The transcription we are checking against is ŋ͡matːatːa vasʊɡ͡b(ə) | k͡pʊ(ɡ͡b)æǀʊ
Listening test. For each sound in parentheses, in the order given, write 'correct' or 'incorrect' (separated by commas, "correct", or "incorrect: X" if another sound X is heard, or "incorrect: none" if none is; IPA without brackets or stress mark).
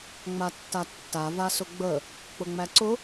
correct, incorrect: ŋ͡m